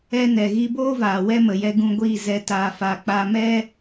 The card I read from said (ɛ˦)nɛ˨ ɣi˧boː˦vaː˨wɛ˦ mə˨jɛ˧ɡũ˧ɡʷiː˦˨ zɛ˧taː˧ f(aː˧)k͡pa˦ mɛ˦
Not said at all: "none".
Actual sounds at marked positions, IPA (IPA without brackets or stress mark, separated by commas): ɛ˧, a˧